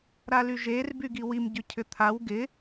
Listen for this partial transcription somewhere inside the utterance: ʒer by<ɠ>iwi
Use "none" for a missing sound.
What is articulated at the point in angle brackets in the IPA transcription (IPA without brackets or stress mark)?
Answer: ɡ